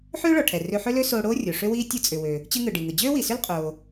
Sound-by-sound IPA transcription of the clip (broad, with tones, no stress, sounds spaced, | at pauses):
ħ øː˥ ɭ ɔ˩ ʈʰ ɛ˩ r ø˧ ħ ø˥ l ø˥ s oː˧ ɽ oː˥ rʲ o˩ ʂ ø˥ w iː˥ tʲ ɯ˧ t͡sʼ ʏ˩ w ø˩ | t͡ɕ ɯ˧ ŋ ɯ˩ ɖ i˩ ŋ ɯ˩ d͡ʑ øː˥ w i˩ s ʏ˥ l qʼ oː˩